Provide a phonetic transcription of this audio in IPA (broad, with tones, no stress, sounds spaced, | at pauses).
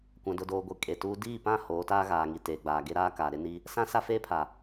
kʷ ã˨ d ʊ˨ d oː˨ ɡʷ e˨ kʼ e˨ t uː˦ d iː˦˨ p ã˦˨ h oː˨˦ t aː˦ ɣ aː˨ ŋ i˨ t eː˨ ɡ͡b aː˨ ɡ e˦ ɾ aː˦ k a˨ ɾ ɪ˦ n i˦ | s ã˦ s a˦ f eː˦ pʰ a˨